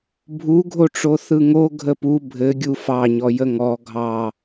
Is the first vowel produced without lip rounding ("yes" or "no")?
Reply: no